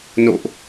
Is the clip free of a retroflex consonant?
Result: yes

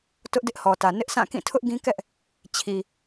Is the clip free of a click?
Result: yes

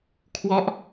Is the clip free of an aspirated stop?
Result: no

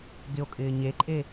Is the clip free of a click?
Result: no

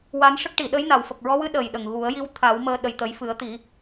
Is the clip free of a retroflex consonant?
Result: no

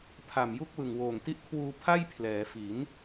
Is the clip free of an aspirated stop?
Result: no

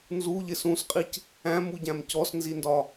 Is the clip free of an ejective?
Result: no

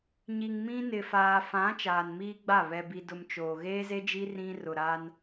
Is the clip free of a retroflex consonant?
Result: yes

